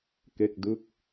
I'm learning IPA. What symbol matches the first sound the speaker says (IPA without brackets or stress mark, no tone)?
k